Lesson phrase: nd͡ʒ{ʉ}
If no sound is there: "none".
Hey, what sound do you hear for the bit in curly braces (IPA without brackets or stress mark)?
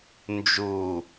u